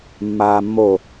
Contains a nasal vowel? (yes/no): no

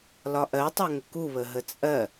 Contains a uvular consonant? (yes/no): no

